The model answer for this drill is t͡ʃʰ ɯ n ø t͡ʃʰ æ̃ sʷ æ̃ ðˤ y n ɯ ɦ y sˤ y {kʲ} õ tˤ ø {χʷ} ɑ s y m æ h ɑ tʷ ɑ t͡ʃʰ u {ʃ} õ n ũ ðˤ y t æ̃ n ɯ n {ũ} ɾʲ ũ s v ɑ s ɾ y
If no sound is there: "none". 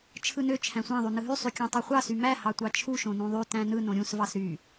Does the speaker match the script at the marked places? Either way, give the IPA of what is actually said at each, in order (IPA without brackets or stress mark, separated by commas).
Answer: kʲ, χʷ, ʃ, õ